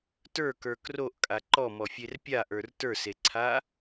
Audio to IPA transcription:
t ə˞ k ə˞ k r o ʔ kʼ a ǃ ɔ m ɔ fʲ e r pʲ a ʔ ə˞ r t ə˞ s e ǀʰ a

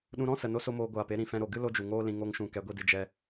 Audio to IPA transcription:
ɗ ũ˧ ɾ ɔ̃˦ s ə˨ n o˦ s o˦ m oː˧ ɡʷ aː˨ p e˧ ɾ ĩ˨ f ɛ̃˧ ɾ o˨ ɡ ɨ˦ l o˦ d͡ʒ u˨ ŋ oː˦ l ĩ˧ ŋ o˦ ŋ ʃ ũ˧ k ɛ˨˦ ɡʷ i˧ d ɨ˨ d͡ʒ ɛ˧

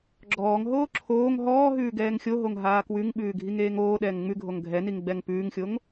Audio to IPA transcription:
ɡ͡ǁ ɔː ŋ ɦ oː ǁʰ oː ŋ ɦ ɔː ɦ ʉː ɡ ɛː ŋ xʲ o ɦ o ŋ ɦ aː k w ʉ ŋ ɓ ʉː ɡʱ i ŋ eː ŋ oː ɗ ɛː ŋ ŋ͡m ʉ ɡʱ o ŋ ɡʱ ɛ n i ŋ ɡ͡b ɛ ŋ p ʉː ŋ xʲ o ŋ

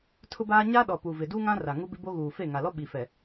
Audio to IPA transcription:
tʰ ʊ˦ b aː˦ ɲ a˦ ɗ ɔ˨ p u˨ v ɪ˨ d u˦ ŋ ã˦ r a˨ ŋ u˦ b ɪ˦ b o˦ ɣ uː˨ f e˦˨ ŋ a˨ l ɔ˦ ɓ i˨ f ɛ˨

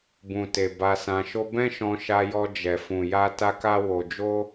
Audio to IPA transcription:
b ũ˨ t e˨ b a˧ s ã˧ ʃ o˦ b ɛ̃˦ ʃ ɔ̃˧ ʃ a˧ j ɔ˧ d͡ʒ ɛ˨ f ũ˨ j a˧ t a˦ k a˦ w o˧ d͡ʒ o˦

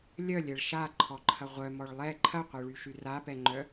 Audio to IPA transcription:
lʲ œ lʲ ɛ ɭ ʃ a ǃʰ ɔ ǃʰ ɐ ʁʷ œ m ɔ ɭ lˠ ɛ ǃʰ ɐ qʷ œ ɭ y ʃ y r a p ɛ ŋ͡ǃ œ

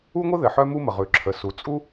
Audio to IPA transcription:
u˥ ŋʷ ə˥ ð ɘ˩ ħ œ˥ m u˥ m ə˩ ʁ ʉ˩ ǁʰ ə˩ s u˩ t͡sʼ u˥

